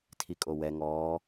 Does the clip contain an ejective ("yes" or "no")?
yes